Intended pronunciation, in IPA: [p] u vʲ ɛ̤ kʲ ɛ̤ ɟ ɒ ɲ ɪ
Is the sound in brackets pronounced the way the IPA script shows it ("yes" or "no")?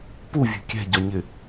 yes